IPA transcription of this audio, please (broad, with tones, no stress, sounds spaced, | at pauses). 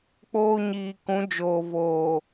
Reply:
k͡p oː˦ ɲ iː˨ k ũ˨˦ d͡ʒ oː˨ v oː˨